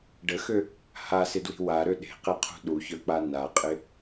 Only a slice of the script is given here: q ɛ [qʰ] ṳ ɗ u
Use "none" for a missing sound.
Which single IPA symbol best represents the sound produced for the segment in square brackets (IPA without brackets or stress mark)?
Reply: qʰ